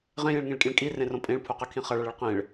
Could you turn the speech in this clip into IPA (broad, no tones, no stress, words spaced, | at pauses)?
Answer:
ʁẽjẽɭŋĩɭkʼĩɭ kʼirẽrõ pʼẽɭpʰuqɯkʰĩ χʌɭʌɭɯɭ qẽɭ